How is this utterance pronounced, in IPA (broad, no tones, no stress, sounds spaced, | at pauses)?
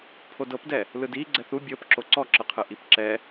pʰ o d ɤ p d ɛ | l ɯ d i ɡ͡ǀ ɛ θ u bʲ ɤ p ǁ o ǀ ɔ ǁ ɯ qʰ ɯ ʔ i p ǁ ɛ